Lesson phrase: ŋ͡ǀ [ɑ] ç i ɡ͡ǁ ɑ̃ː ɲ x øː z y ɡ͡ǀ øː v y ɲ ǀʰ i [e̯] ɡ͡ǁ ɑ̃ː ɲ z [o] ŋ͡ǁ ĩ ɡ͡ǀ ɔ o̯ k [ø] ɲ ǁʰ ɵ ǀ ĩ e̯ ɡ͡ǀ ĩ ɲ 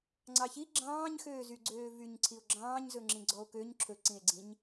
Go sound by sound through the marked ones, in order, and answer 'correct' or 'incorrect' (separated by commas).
correct, incorrect, incorrect, correct